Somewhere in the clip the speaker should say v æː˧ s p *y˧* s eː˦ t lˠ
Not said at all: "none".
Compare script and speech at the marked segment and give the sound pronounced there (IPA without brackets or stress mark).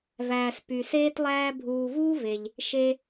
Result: y˧